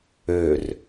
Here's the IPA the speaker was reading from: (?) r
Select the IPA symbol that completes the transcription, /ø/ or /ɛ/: ø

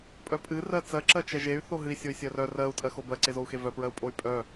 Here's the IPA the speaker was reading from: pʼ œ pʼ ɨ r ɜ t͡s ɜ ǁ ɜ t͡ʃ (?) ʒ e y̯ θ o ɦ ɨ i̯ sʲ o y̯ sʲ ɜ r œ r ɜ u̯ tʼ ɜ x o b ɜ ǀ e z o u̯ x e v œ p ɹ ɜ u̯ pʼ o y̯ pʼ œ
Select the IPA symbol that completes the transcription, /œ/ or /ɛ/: ɛ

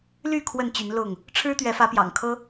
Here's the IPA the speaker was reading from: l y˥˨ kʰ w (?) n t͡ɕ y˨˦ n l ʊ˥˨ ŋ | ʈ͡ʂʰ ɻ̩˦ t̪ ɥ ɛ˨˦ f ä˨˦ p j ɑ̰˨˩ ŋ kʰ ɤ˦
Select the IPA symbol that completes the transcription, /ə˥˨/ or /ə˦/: ə˥˨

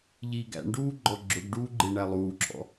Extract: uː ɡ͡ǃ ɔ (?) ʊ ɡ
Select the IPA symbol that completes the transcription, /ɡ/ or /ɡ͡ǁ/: ɡ͡ǁ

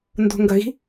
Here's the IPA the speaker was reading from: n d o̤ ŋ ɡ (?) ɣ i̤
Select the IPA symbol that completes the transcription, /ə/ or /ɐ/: ɐ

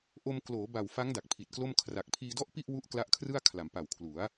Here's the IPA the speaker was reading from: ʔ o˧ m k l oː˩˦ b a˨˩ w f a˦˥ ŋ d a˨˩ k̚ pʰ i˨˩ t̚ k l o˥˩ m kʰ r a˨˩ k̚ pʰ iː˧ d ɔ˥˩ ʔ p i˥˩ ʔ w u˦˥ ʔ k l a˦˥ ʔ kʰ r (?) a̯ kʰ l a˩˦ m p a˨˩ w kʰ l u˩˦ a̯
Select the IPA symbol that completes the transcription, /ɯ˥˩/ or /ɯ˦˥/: ɯ˥˩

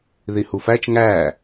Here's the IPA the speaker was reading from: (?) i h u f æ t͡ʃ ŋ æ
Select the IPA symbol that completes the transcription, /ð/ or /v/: ð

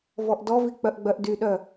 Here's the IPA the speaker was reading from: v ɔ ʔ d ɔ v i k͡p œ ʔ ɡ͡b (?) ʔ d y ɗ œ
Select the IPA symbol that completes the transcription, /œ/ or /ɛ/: œ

